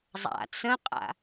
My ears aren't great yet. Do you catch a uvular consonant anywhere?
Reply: yes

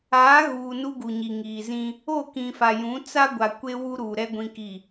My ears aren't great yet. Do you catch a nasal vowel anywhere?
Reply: yes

